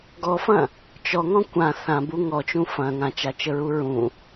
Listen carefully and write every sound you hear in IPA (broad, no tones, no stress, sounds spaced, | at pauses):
ɡ ɔ f ɐ̃ | t͡ʃ ɔ ŋ ɔ̃ kʷ ã θ ã b u ŋ ɔ t͡ʃ ũ f ɐ̃ ŋ ã t͡ʃ a t͡ʃ ə ɹ u ɹ ũ